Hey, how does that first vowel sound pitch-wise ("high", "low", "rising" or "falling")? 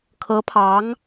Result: rising